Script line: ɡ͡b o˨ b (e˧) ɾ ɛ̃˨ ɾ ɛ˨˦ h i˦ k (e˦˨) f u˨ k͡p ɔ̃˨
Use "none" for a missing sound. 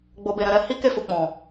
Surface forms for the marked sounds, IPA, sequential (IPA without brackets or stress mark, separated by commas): e˨, e˦˨